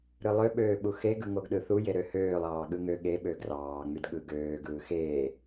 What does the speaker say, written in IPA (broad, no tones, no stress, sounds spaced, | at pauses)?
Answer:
ɾ ɯ lˠ ø ɓ øː ɓ u x e ɡ ɯ ŋ o ɡ ɗ ɯ θ u j e ɾ ø h øː lˠ ɑː ɠ ɯ ŋ ø ɠ e ɓ ø ɡ r ɑː ŋ͡m y d ɠ ɯ ɡ øː ɡ ɯː x eː